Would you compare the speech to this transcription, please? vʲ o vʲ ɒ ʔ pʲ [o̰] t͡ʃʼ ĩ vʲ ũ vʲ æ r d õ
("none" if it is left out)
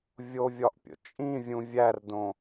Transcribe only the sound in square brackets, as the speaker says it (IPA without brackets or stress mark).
o̰